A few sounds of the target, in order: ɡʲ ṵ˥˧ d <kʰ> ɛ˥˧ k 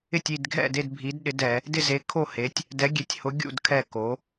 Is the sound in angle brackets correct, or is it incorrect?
correct